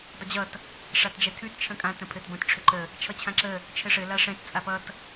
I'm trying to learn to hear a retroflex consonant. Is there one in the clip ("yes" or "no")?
yes